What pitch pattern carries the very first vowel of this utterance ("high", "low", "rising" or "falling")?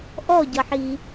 falling